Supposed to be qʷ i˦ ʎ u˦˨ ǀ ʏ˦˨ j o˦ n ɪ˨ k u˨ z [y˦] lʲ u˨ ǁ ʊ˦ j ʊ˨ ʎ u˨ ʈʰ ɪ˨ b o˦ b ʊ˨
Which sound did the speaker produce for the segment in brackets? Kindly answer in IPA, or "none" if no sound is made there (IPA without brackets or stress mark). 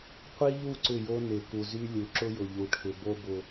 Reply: y˦